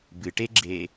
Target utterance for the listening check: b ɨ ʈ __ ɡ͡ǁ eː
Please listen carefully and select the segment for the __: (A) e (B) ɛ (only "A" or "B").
A